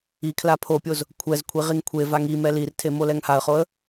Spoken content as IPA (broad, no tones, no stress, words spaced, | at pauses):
ikʰla pʰopʲoz | kʷʰɛz kʷʰiʁiŋkʷʰevaŋ i mɛlirtʰe molɛŋhaə̯χoə̯